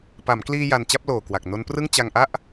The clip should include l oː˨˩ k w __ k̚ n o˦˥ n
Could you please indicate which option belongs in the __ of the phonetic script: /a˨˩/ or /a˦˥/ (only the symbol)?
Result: a˨˩